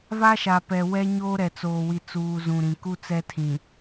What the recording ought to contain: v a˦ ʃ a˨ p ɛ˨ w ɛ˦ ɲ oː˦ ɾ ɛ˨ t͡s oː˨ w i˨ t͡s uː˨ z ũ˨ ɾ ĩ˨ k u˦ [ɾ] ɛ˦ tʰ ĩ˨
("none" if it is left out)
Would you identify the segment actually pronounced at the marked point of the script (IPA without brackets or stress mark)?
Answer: t͡s